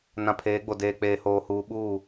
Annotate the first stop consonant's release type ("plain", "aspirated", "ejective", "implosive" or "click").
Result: aspirated